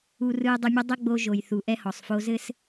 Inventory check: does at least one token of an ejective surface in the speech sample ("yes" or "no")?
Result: no